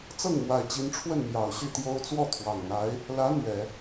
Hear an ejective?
no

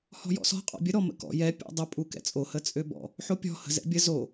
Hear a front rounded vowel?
yes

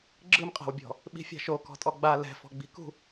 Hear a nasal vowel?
no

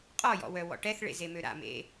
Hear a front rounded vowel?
yes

